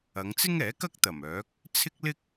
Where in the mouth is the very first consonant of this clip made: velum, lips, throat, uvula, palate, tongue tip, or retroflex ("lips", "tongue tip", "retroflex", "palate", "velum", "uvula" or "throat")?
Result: velum